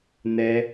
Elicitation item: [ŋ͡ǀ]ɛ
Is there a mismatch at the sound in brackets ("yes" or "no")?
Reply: yes